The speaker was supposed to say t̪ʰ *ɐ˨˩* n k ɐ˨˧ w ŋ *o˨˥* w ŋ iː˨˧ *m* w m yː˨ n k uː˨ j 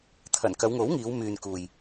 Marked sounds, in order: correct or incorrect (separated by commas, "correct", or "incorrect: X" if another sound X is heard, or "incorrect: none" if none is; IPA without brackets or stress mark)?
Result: correct, correct, incorrect: none